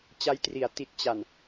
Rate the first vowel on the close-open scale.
open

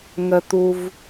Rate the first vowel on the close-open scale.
mid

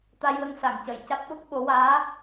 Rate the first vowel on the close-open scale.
open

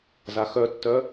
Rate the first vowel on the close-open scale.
open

